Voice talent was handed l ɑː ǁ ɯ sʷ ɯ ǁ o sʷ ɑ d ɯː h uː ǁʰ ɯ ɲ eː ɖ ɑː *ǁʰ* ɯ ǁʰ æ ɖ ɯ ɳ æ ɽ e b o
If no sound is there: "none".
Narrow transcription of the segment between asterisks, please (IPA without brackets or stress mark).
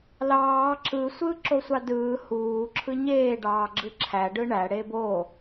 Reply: ɡ͡ǁ